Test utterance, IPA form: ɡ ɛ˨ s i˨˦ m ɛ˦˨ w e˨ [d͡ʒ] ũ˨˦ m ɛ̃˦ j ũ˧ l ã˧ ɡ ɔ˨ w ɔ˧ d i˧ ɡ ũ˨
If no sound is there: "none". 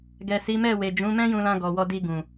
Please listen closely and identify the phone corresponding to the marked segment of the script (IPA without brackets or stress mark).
d͡ʒ